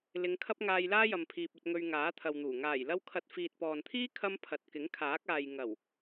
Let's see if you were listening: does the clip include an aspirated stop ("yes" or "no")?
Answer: yes